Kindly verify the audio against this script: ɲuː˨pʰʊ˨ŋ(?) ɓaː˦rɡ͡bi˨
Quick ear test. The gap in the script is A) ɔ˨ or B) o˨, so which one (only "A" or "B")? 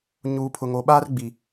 B